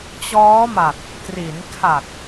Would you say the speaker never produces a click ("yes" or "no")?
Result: yes